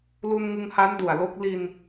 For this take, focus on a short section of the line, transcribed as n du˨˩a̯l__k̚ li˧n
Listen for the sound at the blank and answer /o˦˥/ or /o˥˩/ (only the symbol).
o˦˥